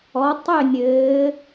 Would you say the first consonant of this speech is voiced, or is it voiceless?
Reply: voiceless